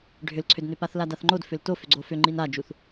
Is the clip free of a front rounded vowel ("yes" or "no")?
no